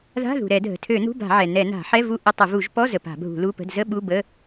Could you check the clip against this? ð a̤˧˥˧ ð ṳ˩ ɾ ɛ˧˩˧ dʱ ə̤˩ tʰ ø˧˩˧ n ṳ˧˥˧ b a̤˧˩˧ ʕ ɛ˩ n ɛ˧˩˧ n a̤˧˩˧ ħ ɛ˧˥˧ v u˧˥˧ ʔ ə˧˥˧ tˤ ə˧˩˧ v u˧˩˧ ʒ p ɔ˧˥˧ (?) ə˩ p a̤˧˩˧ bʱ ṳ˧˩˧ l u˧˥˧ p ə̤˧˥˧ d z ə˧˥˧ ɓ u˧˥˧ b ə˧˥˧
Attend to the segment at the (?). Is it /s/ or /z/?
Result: z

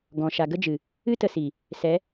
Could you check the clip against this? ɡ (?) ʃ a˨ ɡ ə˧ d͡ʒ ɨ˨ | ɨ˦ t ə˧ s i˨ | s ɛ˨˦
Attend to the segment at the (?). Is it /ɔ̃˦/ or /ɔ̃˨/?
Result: ɔ̃˨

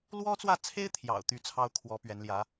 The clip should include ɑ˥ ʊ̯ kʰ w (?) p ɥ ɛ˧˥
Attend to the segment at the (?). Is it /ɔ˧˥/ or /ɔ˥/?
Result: ɔ˧˥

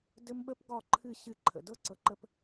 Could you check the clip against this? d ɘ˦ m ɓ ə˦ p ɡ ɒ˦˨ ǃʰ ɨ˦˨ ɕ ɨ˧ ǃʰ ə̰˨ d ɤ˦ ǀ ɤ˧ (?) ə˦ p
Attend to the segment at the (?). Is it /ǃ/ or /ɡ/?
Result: ǃ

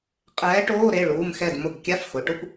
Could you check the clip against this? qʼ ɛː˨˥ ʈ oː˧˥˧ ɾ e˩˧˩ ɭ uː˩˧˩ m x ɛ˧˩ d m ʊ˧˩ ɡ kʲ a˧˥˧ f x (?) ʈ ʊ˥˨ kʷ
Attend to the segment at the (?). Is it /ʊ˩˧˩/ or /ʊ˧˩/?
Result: ʊ˩˧˩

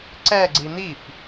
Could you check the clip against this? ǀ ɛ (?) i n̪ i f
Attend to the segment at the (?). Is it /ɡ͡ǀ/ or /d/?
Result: ɡ͡ǀ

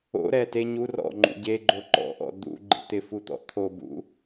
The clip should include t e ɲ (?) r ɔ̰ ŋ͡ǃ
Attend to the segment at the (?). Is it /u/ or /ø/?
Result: u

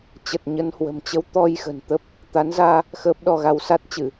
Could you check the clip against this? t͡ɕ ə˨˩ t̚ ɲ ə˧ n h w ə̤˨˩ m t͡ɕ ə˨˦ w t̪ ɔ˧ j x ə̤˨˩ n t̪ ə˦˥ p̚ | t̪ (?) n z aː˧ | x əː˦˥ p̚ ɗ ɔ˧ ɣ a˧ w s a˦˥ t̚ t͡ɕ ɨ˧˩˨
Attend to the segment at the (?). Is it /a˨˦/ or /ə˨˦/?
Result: a˨˦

